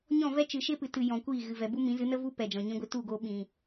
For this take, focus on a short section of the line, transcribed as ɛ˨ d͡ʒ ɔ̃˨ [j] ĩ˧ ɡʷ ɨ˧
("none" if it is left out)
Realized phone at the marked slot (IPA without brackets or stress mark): ɲ